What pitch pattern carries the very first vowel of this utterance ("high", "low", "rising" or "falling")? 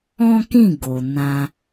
high